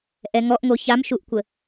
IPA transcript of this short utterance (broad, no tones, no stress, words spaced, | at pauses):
ʔɛŋɔʔŋo çamʃuʔkʷə